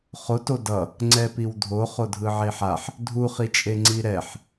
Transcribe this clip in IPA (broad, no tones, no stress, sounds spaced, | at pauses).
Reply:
χ o t o d ʌ | ŋ͡ǀ ɛ p i w dʱ o χ o dʱ ɯ ʕ e ħ a ħ | dʱ u χ i t͡ʃʼ e ŋ͡ǀ i ɾ ɛ ħ